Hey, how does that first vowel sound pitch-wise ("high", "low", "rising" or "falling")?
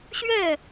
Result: falling